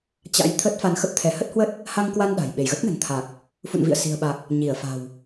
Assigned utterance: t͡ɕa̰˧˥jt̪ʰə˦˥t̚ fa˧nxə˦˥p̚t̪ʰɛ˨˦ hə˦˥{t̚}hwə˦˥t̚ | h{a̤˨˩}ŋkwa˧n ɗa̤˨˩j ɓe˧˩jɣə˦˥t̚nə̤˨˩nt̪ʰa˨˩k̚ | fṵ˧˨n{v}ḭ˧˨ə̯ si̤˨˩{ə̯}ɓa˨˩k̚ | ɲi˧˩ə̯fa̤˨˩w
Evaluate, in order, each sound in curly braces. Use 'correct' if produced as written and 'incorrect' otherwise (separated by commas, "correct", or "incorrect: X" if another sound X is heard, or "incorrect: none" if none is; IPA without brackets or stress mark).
correct, incorrect: a˧, correct, correct